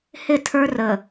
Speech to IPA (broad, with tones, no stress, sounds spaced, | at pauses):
h ɪ˦˨ tʰ ə˞˦ r ə˨